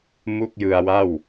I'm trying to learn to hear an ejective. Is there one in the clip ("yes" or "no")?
no